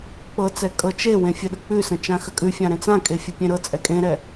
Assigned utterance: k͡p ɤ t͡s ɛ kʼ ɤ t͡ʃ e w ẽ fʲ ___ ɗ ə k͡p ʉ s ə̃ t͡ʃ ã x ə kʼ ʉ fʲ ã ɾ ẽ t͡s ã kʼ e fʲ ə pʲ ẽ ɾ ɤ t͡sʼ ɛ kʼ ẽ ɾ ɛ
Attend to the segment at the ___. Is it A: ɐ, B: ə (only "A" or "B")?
B